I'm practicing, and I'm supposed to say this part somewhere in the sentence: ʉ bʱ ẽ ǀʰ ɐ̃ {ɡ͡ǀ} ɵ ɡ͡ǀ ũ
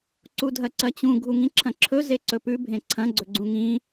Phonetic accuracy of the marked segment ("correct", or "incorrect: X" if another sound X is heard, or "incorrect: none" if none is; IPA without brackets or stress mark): correct